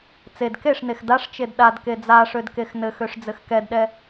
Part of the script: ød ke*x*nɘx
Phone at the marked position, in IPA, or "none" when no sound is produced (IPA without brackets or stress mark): x